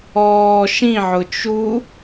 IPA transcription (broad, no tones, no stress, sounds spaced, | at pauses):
ɔː ʃ ĩ ʕ ʊ t͡ʃ u